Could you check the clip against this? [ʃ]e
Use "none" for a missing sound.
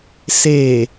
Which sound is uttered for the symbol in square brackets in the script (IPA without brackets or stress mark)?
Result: s